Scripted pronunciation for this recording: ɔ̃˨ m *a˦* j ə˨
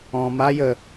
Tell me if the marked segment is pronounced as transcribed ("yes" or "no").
yes